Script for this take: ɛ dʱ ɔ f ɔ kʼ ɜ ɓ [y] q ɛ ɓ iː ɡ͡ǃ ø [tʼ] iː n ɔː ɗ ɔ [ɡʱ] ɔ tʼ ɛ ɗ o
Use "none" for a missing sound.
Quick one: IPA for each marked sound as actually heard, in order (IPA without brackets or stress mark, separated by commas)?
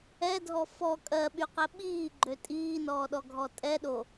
y, tʼ, ɡʱ